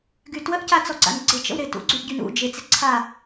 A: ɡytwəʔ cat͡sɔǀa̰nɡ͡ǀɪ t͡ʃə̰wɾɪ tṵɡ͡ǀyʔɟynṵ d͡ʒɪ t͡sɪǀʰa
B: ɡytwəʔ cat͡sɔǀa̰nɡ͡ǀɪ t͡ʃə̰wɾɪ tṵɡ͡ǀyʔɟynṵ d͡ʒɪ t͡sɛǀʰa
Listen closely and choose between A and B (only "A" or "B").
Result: A